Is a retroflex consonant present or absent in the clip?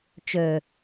absent